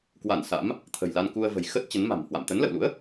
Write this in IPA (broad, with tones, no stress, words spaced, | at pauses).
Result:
kwa˧˩n sa̰˧˥m | t̪ʰə̤˨˩jla˧n ku˧ə̯və̤˨˩j xə˦˥t̚ t͡ɕə˨˦nma̤˨˩mhwa̰˧˨m t̪ə˨˦nlə̰˧˨wlṵ˧˥ə̯